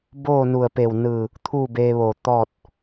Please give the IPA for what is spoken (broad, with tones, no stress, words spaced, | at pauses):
boː˥˨nu˧˩ə̯pe˧˩wnɯː˧˩ | t̪ʰu˥˨beː˧ʋoː˧˩ t̪ɔː˥˨t̚